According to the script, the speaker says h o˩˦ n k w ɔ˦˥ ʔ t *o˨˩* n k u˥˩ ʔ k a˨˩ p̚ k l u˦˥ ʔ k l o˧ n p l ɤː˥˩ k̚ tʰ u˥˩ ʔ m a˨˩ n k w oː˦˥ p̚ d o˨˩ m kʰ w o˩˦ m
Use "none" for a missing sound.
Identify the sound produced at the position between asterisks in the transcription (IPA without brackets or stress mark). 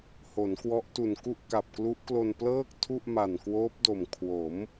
u˨˩